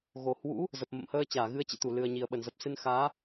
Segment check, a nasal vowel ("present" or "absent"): absent